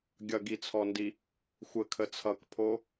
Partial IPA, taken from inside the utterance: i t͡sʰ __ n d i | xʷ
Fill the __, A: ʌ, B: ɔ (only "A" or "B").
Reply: B